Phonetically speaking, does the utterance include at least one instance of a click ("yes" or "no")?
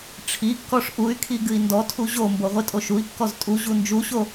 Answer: no